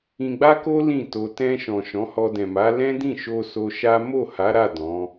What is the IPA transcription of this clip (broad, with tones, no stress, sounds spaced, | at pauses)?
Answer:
ĩ˧ ɡ͡b a˦ k o˦ l ĩ˦˨ t o˧ t ɛ̃˧ ʃ ɔ̃˨ ʃ ɔ̃˨˦ h ɔ˧ d ɛ̃˨ m a˨˦ l ɛ̃˦ d ĩ˦˨ ʃ o˧ s o˧ ʃ a˦ m o˦˨ h a˨˦ ɾ a˦˨ d ɔ̃˨˦